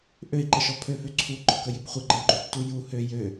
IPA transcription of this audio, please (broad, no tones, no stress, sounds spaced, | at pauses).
ʔ ø i̯ ǃ ə ʃ ɔ pʰ ø f ø ǀʰ u ɡ͡ǃ ɔ k ə j ɪ b χʷ ɪ ɡ͡ǃ ə u̯ ɡ͡ǃ ø tː u j u h ø j ø